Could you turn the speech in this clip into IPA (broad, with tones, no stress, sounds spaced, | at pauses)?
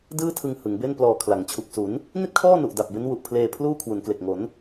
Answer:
d ɯː˥˩ tʰ ɯ˧ ŋ h ɯ˩˦ ŋ b e˥˩ n p l ɔː˧ kʰ l a˩˦ ŋ t͡ɕʰ u˨˩ k̚ s u˩˦ n | n i˥˩ t̚ kʰ ɔː˥˩ n u˨˩ ʔ d a˨˩ p̚ b e˦˥ n w u˨˩ ʔ pʰ l eː˧ pʰ l uː˥˩ kʰ w u˩˦ n k l e˨˩ k̚ ŋ o˩˦ n